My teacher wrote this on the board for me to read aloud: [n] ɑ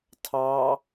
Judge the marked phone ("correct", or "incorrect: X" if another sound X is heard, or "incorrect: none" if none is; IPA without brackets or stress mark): incorrect: tʰ